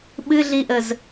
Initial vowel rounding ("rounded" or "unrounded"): unrounded